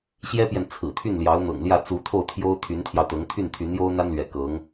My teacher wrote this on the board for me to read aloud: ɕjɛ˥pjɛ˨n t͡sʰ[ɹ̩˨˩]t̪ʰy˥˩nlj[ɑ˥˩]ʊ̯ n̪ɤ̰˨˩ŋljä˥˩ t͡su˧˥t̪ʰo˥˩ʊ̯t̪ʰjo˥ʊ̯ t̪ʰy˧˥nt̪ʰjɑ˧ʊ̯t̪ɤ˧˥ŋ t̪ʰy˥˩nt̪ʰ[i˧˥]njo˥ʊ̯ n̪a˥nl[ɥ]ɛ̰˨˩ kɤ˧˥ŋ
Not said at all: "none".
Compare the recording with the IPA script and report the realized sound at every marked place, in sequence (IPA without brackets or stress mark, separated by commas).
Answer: ɹ̩˨˩, ɑ˧˥, y˧˥, ɥ